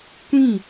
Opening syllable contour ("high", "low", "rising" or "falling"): falling